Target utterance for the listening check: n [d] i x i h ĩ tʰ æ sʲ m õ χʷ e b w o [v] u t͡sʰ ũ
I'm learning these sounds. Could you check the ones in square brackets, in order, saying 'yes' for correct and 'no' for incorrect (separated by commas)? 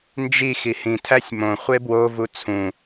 no, yes